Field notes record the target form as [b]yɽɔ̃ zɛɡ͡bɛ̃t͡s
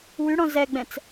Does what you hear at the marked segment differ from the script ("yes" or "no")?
yes